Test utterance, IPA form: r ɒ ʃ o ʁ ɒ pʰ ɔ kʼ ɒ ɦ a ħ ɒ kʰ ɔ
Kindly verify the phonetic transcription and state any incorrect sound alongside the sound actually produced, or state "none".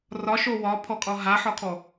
ʁ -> w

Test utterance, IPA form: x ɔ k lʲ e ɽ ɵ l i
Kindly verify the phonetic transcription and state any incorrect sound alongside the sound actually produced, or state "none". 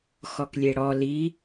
ɵ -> ɔ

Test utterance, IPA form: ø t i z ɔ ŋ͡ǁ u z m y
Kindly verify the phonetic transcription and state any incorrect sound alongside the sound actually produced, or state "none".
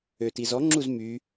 none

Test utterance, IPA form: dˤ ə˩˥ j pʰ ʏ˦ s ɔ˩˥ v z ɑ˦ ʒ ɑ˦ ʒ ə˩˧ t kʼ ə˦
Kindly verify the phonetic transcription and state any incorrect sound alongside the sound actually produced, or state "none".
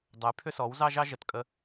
v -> w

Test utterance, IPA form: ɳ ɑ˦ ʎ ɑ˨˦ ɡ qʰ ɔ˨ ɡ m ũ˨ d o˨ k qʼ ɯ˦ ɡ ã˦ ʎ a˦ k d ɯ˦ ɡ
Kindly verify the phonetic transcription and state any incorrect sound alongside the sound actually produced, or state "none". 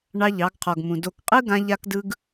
none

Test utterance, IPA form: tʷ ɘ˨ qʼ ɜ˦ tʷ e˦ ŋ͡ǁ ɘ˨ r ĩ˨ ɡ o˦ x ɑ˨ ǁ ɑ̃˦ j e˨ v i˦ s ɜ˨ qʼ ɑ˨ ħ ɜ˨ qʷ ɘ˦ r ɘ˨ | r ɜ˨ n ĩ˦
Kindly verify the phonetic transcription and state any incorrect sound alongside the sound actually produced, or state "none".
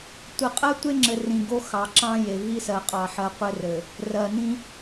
none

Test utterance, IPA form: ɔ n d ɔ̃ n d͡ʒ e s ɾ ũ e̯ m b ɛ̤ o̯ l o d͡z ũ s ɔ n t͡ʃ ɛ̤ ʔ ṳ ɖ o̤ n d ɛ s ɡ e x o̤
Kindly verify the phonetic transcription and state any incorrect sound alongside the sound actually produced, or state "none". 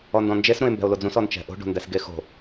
ṳ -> o̤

